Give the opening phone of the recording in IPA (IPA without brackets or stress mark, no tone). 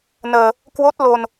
n